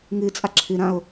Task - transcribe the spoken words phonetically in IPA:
ŋ ɨ t͡sʼ a ǁʰ ɨ ɾ ã o̯

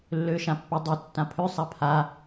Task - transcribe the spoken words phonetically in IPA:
lː ø ʃ ã pː ɵ dˤ ø tː ã pʰ ø sˤ a pʰ a

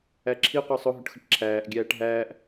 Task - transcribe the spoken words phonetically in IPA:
æ ǁʰ i qʷ ə˞ sˤ ʊ ɦ ʊ ʈ x ə ʈ ǁʰ æː ʔ ɡʲ æː ʈ ɦ æː ʔ

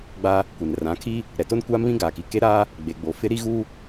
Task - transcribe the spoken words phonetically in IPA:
ɡ͡b a˦ | kʷ ɪ˨ n r ã˨˦ kʰ i˦ | ɾ ɛ˨ t o˦ n kʷ aː˦ m β ĩ˦ ɡ aː˨ k i˨ k e˦ ɾ aː˦ | ɡ͡b e˨ ɡ͡b o˨ f ɪ˦ ɾ i˦ ɣ u˦

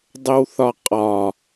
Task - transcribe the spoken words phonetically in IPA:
dˤ e w θ ɒ qʼ ɒ

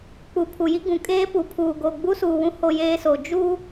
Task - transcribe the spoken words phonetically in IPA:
k͡p u˨ pʰ u˨ j i˦ ɡ ũ˨ kʼ eː˦ p u˨ pʰ uː˨ ɡ o˨ ɡ͡b u˦ s uː˨ w ũ˦ h o˨ j eː˨ s o˨ d͡ʒ uː˦

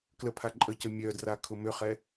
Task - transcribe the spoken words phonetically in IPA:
k l ə pʰ a ǃʼ ə c ə mʲ œ d r a kʰ ʊ m ʏ χ ɛ

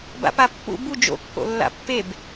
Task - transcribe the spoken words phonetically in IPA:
b a̰ p a pː ṵ b u d͡ʒ o̰ kː o̰ lː a̰ pː e b

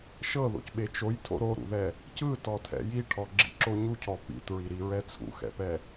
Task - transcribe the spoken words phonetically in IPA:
ʃ ɤ ð o̰ c ɓ e t͡ʃ o j tʰ o̰ ɾ o ɾ ṵ ð ɛ | c ɯ t ɔ tʰ ɛ̰ j i ʈʰ ɔ ɡ͡ǁ ḭ ǁ o ɲ u cʰ ɔ p ḭ t ɹ i ɾ i ɹ ɛ t͡sʰ ṵ x ɛ̰ p ɛ

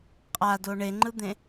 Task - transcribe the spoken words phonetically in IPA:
qʼ a d o ɳ e ŋ͡ǃ ɯ d̪ ẽ

